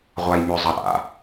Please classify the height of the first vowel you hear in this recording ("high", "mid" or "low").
low